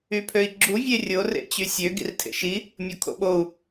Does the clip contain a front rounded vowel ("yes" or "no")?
yes